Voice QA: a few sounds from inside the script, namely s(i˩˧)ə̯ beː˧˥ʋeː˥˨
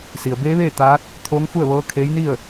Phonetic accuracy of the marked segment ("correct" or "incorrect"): incorrect